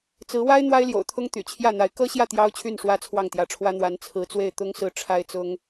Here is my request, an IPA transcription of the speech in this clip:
t͡s ɹ̩˧˥ w a˥ ɪ̯ n̪ w a˥ ɪ̯ l j o̰˨˩ ʊ̯ t̪ʰ ʊ˥ ŋ t̪ y̰˨˩ t͡ɕʰ j ä˥˩ n̪ a˧˥ ɪ̯ k ɤ˥ ɕ j ä˥˩ t̪ j ɑ˥ ʊ̯ t͡ɕʰ y˥˩ n ʂ w ä˥ t͡sʰ w ɑ˥˩ ŋ t̪ j ä˧˥ ʈ͡ʂʰ w ä˥ n̪ w a˧˥ n t͡sʰ ɹ̩˧˥ t͡s w e˥˩ ɪ̯ t̪ ʊ˥ ŋ s ɹ̩˥˩ ʈ͡ʂʰ a˥ ɪ̯ t͡s ʊ˥ ŋ

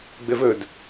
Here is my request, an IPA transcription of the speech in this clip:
ɡ͡b ɘ v ɵ d

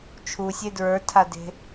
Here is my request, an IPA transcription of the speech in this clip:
t͡ʃʰ u sʲ e d ɹ ə˞ tʰ a d e̤

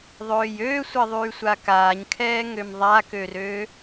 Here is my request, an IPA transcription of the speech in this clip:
ðˤ øː j øː sʷ ɛ ðˤ yː sʷ a k aː ɲ kʰ ɛː ŋ ø m ðˤ a k ø r øː

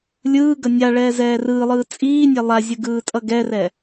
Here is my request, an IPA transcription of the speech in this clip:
lʲ ɯː ɡ ʌ nʲ a ɭ ɛː z ɛː r ɯː lˠ ɯː t͡sʼ iː nʲ ɛ lˠ a zʲ ɯ ɡ ɯː tʼ ʌ ɡ ɛ r ɛ

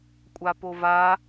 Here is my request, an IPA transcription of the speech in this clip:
kʷʼ a p o v a

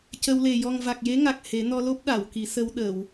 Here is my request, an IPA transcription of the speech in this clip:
c ə˧ w l e˨˩ j ɔ˨˩ ŋ v a˨˩ k̚ j e˧˥ ŋ a˨˩ k̚ h e˨˩˦ n ɔ˧ l o˦˥ p̚ ɗ a˨˩˨ w k i˨˩˦ s ə˧ w ɗ ə˨˩˨ w

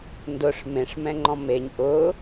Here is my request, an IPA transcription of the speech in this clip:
n d ʊ ʂ m ẽ ʂ m ɛ̃ ŋ͡ǃ ɔ̃ m e ɲ ʔ ʊ

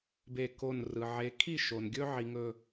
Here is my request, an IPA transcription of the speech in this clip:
b e˧˩ k o˧˩ n r ɯ˩ ʕ e˨˦ kʰ i˥˨ ʃ o˩ n ɡʲ ɵ˦ ʕ i˩ ŋ ɵ˧˩

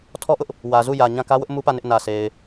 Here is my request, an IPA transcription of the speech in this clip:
tʰ ɔ˦ ʔ ʊ˦ ʔ | w ä˨ z u˦˨ j ä˨ ɲ ã˦˨ k ä˦ w ʊ˦ ʔ m u˦ p ä˦˨ n ɪ˦ ʔ n ä˨ sʰ e˨ ɪ̯

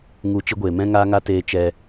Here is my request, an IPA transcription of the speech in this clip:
ŋ u˨˦ t͡ʃ i˧ ɡʷ eː˨ m ɛ̃˦ ŋ aː˦ ŋ a˦ t eː˧ t͡ʃ ɛ˧

